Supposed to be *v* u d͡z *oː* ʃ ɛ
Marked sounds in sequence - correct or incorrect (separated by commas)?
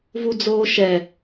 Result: correct, correct